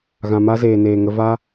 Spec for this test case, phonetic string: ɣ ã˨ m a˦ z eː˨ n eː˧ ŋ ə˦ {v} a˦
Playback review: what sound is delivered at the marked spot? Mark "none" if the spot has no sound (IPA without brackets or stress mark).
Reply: v